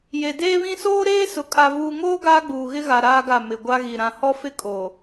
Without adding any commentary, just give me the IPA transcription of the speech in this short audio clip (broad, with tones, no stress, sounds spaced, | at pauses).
j e˨ d eː˦ β ĩ˦ s oː˦ ɾ eː˦ s ʊ˨ kʼ a˨ v uː˨ ŋ oː˦ ɡ aː˦ ɡ͡b uː˨ ɣ ɪ˦ ɣ a˨ ɾ aː˦ ɡ a˦˨ m ɪ˨ ɡʷ a˦ ɣ i˨ ɾ ã˨ h ɔ˦ f ɪ˦ kʼ o˨